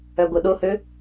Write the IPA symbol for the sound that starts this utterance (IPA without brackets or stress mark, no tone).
œ